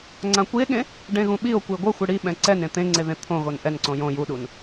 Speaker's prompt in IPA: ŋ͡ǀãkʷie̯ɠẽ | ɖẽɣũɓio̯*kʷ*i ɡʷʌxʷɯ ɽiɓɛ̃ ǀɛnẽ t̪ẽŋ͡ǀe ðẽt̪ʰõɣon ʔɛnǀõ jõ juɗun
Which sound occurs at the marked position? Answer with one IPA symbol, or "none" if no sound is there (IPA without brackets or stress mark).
kʷ